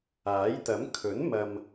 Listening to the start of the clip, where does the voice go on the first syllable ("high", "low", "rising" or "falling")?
rising